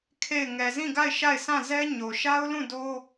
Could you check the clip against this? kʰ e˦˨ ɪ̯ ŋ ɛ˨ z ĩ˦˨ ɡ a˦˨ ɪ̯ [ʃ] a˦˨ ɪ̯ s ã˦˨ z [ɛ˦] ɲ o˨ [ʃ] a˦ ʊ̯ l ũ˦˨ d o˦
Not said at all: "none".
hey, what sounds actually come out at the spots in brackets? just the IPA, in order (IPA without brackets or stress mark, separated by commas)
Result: ʃ, ɛ˦, ʃ